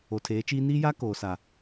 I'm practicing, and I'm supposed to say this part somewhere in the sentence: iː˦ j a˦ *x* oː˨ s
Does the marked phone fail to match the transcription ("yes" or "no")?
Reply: yes